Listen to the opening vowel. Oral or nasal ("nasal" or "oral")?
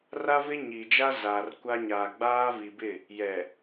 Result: oral